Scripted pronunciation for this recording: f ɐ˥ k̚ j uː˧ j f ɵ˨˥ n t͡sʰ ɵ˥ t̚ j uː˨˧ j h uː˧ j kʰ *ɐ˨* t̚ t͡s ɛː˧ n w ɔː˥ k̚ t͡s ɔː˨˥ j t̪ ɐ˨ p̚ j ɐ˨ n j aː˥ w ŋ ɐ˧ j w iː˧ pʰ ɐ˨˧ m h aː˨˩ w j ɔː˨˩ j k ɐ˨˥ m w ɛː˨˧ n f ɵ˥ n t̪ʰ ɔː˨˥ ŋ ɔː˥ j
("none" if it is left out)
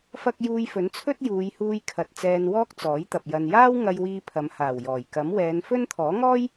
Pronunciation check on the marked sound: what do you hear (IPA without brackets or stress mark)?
ɐ˨